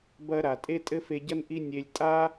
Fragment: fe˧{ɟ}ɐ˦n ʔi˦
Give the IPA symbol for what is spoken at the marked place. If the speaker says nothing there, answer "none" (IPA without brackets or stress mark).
ɟ